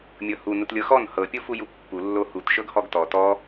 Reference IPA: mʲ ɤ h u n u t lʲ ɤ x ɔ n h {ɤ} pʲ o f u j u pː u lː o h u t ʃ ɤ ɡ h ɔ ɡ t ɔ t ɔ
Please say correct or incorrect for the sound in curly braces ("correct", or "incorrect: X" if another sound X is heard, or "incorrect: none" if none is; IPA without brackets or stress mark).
correct